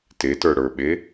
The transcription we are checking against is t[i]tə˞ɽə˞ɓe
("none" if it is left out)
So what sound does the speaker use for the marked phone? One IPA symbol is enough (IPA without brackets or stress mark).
e